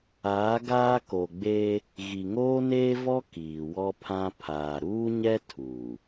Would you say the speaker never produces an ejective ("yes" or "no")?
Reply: yes